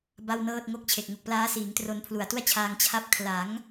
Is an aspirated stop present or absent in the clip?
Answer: present